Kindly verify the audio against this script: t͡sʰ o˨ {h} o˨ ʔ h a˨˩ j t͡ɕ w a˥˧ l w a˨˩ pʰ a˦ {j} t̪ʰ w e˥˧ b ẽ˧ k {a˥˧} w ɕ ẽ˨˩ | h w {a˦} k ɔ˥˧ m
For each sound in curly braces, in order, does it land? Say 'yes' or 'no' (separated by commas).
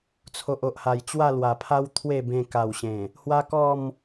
no, no, no, yes